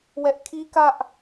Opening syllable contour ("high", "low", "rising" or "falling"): high